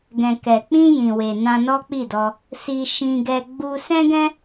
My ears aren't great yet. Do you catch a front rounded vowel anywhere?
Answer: no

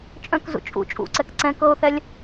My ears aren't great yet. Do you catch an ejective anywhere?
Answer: yes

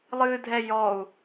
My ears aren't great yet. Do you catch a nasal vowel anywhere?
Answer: no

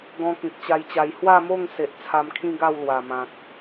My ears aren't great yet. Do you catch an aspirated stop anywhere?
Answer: yes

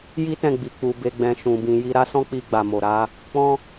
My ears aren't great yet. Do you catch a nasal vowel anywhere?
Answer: yes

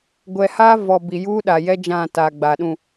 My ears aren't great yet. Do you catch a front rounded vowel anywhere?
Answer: no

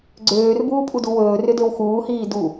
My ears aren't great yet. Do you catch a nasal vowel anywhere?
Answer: no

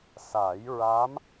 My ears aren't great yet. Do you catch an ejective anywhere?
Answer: no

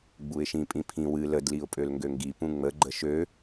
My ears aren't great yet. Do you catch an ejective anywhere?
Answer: yes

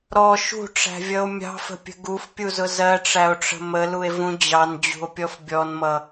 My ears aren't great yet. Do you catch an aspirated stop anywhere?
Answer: no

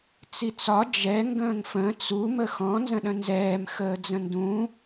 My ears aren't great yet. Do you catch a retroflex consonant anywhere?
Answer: no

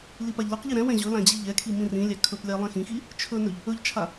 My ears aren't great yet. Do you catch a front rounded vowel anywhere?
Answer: no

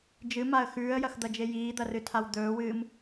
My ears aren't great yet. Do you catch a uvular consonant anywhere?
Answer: no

